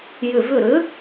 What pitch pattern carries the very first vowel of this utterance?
falling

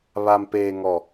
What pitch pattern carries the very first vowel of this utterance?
low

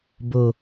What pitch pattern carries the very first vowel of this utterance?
low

